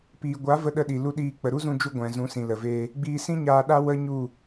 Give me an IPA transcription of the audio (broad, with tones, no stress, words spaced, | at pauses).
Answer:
piː˨ɡʷa˨˦ və˧ɗə˧ɗi˨ lu˧ɗiː˧ k͡pə˨ɾu˦zũ˧d͡ʒu˧ ɡʷɛ̃˨zũ˨˦sĩ˨ lə˨veː˧ | ɡ͡biː˧sĩ˦ɲaː˧ɗa˦ wə˦ ɲu˦˨